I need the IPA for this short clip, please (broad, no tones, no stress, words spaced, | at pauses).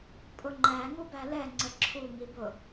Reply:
pʼʊŋ͡ǃæ ŋubælɛ ŋ͡ǀəǁʰuŋibʊ